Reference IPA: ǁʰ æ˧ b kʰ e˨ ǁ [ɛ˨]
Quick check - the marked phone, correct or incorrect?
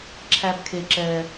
correct